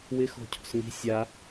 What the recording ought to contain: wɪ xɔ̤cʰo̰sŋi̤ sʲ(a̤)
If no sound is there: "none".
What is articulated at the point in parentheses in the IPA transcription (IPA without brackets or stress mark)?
a